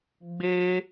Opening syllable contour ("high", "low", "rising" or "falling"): high